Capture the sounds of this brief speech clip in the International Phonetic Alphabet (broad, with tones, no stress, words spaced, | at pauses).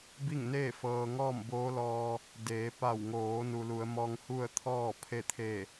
bi˥˨ŋneː˥˨ fɤː˧ŋɔː˥˨m boː˧˥lɔː˧ | deː˩˧pa˧˩wŋoː˩˧ nu˩lu˩˧ə̯mɔː˧ŋ hu˥˨ə̯t̪ʰɔː˥˨ pʰe˥˨ t̪ʰe˧˩